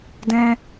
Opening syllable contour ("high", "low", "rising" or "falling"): high